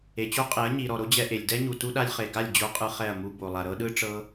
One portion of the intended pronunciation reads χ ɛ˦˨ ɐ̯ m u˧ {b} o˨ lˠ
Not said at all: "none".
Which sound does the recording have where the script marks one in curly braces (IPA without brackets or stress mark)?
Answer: b